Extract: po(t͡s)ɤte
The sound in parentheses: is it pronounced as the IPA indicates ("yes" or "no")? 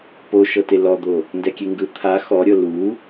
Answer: no